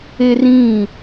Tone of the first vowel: high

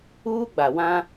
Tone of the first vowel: high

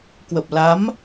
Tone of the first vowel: low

